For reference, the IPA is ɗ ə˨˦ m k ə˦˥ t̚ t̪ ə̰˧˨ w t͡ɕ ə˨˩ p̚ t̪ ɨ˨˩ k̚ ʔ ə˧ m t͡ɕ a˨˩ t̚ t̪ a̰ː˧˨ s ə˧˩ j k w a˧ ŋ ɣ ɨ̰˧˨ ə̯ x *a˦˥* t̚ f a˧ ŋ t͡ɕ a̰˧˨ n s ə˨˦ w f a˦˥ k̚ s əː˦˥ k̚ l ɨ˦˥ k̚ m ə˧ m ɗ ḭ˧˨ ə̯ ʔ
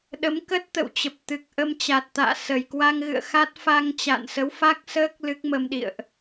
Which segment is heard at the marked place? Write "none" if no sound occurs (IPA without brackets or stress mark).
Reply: a˦˥